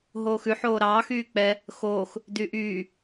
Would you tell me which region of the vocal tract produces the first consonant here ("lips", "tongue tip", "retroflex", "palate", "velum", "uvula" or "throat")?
throat